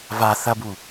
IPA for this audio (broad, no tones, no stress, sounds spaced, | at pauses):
v a θ ɐ b u